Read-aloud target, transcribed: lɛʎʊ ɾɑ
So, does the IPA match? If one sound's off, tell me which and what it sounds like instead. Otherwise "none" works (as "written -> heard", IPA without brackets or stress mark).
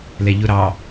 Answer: none